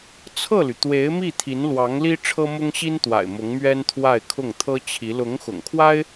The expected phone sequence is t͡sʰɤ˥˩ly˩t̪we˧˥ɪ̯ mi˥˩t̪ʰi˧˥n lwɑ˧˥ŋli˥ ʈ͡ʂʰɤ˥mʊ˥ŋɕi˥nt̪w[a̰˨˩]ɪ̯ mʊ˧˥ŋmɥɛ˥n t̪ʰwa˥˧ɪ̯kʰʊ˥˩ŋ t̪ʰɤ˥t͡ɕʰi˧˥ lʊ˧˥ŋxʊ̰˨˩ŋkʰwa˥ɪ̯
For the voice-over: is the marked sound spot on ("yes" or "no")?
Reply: yes